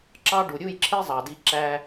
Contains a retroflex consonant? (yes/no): yes